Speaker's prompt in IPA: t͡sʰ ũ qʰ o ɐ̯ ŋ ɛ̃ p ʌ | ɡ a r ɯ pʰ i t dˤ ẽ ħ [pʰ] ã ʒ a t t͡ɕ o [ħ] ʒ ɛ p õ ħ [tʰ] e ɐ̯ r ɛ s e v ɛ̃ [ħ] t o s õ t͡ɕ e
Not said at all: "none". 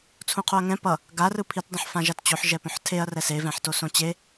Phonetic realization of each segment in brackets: f, ħ, tʰ, ħ

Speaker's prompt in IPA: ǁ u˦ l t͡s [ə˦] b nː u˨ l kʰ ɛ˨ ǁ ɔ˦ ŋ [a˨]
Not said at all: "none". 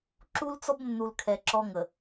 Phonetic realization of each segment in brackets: ɔ˦, ə˨

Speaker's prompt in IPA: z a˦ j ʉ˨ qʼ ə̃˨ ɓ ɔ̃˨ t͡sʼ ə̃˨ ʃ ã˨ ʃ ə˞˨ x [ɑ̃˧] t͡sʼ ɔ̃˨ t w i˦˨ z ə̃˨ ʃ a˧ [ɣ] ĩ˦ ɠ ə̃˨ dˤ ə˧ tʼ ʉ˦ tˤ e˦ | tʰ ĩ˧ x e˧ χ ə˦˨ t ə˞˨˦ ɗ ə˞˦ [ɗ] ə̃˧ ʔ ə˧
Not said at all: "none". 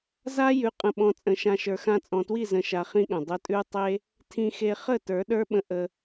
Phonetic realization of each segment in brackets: ã˧, χ, ɓ

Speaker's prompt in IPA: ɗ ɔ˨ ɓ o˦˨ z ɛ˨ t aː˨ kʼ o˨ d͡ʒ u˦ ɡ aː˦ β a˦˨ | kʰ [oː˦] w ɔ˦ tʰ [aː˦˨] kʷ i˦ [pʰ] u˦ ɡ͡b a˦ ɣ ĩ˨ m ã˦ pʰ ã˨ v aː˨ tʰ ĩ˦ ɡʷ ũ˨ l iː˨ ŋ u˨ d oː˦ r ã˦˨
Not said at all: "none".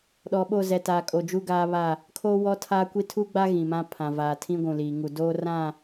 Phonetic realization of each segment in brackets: oː˦, aː˦, tʰ

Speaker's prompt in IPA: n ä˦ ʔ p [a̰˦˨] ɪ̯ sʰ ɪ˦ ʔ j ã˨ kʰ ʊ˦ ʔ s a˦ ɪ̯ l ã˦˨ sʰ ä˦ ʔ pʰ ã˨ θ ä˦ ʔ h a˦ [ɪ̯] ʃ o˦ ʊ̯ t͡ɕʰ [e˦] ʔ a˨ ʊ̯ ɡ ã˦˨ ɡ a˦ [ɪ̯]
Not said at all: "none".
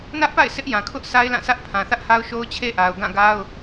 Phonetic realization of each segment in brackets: a̰˦˨, ʊ̯, e˦, ʊ̯

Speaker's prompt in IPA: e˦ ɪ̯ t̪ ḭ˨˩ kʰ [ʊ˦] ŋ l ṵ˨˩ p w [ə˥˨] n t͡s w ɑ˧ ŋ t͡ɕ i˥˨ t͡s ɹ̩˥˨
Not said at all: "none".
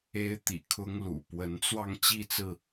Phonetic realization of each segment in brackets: ʊ˦, ə˨˦

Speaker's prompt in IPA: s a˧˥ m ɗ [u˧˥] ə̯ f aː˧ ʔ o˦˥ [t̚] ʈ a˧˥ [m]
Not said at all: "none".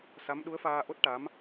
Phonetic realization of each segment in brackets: u˧˥, t̚, m

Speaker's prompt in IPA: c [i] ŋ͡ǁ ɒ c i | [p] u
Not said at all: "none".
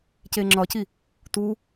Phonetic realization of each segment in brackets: e, t

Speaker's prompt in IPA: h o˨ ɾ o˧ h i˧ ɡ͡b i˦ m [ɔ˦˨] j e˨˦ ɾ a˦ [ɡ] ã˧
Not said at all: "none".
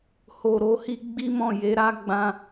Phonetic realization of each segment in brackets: ɔ̃˦˨, ɡ͡b

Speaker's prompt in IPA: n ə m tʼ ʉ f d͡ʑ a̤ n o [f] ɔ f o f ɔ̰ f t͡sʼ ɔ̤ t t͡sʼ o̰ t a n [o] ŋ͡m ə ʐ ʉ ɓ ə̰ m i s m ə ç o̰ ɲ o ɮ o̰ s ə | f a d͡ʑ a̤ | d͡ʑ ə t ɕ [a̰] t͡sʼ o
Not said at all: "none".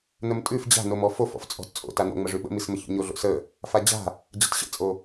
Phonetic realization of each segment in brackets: m, o̰, ə̰

